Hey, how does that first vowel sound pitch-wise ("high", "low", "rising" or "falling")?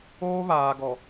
high